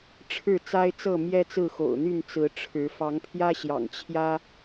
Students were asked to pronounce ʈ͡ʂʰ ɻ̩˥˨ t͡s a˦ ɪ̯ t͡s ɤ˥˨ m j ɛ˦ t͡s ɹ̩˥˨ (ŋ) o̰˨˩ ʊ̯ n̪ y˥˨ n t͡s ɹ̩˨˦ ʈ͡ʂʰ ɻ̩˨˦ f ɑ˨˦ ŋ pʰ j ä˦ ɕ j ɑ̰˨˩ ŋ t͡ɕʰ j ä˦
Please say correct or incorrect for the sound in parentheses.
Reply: incorrect